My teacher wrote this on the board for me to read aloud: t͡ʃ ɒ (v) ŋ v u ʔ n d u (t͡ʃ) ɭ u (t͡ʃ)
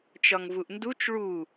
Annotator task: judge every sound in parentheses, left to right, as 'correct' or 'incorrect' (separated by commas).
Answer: incorrect, correct, incorrect